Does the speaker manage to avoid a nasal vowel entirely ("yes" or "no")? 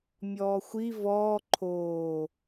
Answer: yes